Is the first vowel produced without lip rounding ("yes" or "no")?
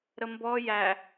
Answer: yes